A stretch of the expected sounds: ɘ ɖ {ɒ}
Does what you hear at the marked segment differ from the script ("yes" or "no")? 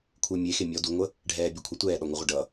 yes